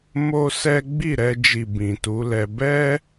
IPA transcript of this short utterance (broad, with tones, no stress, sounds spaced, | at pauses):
m o˦ s ɛ˦ ɡ͡b i˦˨ ɾ ɛ˧ d͡ʒ i˨ b ĩ˨ t u˨˦ l ɛ˧ b ɛ˦